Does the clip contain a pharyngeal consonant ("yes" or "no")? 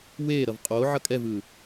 yes